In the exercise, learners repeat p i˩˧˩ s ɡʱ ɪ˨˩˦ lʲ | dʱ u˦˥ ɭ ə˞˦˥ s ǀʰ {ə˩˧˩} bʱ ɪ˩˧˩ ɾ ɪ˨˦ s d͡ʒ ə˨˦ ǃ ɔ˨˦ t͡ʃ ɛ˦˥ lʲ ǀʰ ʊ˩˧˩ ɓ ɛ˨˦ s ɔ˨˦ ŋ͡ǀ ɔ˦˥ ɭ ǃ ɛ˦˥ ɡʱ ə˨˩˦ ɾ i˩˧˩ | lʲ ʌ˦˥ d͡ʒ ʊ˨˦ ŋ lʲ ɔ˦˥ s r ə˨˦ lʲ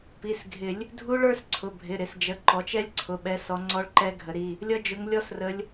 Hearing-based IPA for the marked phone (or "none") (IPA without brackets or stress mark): ʊ˩˧˩